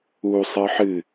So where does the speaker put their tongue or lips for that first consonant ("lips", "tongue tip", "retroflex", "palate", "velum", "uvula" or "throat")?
tongue tip